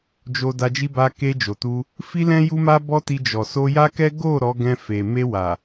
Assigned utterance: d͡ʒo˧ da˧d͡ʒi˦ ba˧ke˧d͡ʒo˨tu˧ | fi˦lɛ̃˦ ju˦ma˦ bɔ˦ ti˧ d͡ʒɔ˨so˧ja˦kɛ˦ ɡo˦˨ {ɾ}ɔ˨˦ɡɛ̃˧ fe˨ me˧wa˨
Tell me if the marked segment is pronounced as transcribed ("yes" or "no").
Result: yes